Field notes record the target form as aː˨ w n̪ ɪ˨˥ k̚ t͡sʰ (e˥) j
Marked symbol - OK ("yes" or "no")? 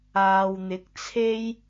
yes